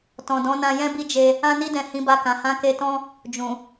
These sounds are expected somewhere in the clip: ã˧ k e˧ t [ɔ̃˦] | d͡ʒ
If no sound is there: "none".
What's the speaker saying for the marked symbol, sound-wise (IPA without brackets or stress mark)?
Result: ɔ̃˦